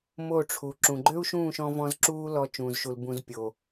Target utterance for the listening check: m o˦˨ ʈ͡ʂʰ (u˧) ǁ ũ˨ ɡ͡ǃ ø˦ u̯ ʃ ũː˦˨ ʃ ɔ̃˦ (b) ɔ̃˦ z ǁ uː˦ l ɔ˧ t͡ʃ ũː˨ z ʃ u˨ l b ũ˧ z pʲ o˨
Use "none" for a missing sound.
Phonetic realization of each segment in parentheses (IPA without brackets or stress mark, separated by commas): u˨, v